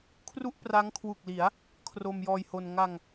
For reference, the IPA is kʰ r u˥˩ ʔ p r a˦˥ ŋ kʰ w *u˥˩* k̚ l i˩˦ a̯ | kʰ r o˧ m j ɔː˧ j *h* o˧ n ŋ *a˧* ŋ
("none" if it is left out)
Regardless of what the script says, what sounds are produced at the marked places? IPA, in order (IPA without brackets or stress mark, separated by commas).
u˨˩, h, a˧